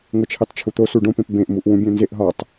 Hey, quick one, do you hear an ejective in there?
no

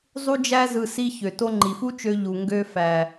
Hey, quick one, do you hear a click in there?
yes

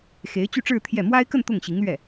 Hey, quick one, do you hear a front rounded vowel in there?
yes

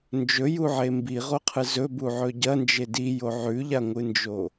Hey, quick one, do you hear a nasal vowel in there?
no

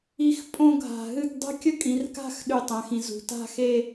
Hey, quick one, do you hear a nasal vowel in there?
yes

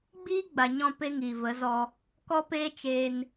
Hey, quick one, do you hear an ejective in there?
no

